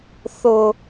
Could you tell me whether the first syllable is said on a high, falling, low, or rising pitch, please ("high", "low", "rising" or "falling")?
low